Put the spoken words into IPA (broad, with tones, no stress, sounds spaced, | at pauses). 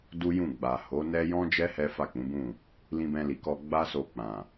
d u˦ j ũ˦˨ ɡ͡b a˨ h o˨˦ n ɛ˦ j ɔ̃˦ d͡ʒ ɛ˦ h ɛ˦ f a˦˨ k͡p ũ˨˦ b ũ˦˨ | l ĩ˧ b ɛ̃˧ l i˨ k ɔ˧ ɡ͡b a˦ s o˧ k͡p ã˨